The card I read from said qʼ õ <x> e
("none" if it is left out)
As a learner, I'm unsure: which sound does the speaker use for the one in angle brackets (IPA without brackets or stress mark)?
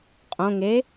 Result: ŋ